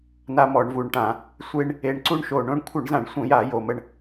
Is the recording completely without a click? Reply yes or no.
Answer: no